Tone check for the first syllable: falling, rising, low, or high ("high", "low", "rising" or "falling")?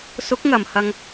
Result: rising